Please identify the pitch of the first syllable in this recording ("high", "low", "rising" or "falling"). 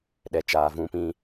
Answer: low